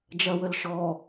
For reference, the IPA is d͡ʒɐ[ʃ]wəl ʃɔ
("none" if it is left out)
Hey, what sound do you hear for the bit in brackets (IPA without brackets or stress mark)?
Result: none